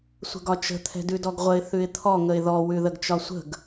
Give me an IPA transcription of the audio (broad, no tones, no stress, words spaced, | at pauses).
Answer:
sʷə̤ɡɒt͡ʃə̤ t̪ʰɛ̤dʉdɔɡʁʷəɪ̯ θʉɪ̯t̪ʰɔ ŋəɪ̯ðɔ wʉðəɡt͡ʃɒsʷə̤ɡ